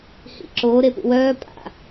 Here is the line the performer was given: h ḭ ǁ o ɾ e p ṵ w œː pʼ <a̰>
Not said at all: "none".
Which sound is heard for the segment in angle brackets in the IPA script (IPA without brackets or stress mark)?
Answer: a̰